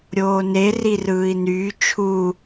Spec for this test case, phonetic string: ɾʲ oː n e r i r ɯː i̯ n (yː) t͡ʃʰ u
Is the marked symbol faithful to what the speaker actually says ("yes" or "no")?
yes